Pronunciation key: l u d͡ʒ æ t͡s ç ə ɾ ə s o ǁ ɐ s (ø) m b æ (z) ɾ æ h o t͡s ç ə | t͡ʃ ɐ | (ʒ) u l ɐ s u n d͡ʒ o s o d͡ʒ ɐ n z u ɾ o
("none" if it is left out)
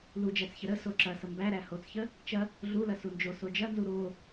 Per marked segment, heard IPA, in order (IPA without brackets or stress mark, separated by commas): ə, none, ɮ